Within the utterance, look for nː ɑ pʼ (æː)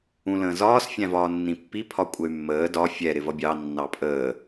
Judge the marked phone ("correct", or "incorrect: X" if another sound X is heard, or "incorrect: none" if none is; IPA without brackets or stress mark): incorrect: əː